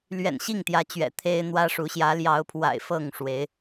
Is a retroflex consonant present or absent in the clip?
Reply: present